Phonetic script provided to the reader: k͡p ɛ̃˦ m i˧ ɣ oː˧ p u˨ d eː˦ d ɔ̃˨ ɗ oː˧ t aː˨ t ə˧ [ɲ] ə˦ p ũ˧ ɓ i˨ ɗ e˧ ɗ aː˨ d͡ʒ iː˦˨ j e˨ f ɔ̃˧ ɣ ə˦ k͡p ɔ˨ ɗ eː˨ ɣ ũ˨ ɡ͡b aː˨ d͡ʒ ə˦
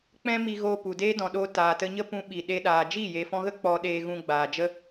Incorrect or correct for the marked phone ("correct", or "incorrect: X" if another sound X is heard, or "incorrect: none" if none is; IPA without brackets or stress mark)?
correct